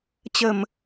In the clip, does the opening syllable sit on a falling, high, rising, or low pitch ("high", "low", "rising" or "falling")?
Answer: low